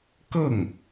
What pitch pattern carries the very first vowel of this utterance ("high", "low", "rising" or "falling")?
falling